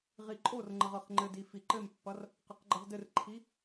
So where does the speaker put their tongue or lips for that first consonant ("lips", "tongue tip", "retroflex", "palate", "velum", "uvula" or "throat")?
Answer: uvula